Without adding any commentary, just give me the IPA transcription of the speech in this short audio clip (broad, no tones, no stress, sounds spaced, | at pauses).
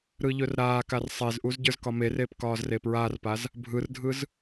ɾ ɯ ʎ ɵ r ɾ aː k a r sˤ e z ʔ u z ɟ ə˞ z k ɒ m e r eː p k ɒː z r e p ɹ aː r p a z | bʱ ɯ r dʱ ɯ z